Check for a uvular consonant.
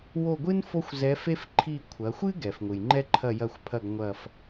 absent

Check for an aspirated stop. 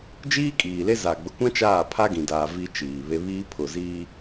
present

